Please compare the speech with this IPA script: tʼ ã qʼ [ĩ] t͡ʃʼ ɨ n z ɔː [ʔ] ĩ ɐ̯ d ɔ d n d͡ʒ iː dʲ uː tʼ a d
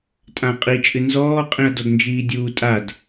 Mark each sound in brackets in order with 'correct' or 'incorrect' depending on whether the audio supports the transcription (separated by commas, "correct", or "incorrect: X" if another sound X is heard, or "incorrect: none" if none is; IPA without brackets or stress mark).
incorrect: i, incorrect: qʼ